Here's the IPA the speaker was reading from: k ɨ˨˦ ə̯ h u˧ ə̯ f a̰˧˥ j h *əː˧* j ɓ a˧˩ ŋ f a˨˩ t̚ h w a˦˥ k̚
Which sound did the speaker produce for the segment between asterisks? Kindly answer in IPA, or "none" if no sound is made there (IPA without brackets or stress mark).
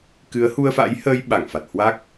əː˧